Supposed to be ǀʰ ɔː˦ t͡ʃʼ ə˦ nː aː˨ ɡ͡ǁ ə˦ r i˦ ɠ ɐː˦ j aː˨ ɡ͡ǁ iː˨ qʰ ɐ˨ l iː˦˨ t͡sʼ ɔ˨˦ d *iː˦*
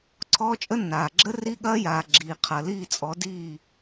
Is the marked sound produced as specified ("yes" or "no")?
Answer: no